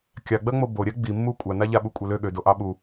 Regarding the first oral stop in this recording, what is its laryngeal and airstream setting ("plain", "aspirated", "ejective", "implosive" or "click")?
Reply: plain